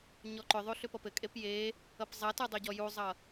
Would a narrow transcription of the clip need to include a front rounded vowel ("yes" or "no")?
yes